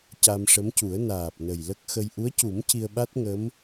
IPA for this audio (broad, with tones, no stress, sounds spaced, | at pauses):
c a˧ m ʂ ə˧˥ m c u˨˩˦ ə̯ n aː˨˩ p̚ n ə˨˩ j l ə˦˥ k̚ x ə˧ j ʔ u˧˥ ə̯ c u˨˩˦ m c i˧ ə̯ ɓ a˦˥ t̚ ŋ ə˧˥ m